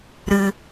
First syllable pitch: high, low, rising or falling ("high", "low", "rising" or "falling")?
low